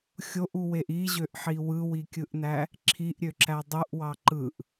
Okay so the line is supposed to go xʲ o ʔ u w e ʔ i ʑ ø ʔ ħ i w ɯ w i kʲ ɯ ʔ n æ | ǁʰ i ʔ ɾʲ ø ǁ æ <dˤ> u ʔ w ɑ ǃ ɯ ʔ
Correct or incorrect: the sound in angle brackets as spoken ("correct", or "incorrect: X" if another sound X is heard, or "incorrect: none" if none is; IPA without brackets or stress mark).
correct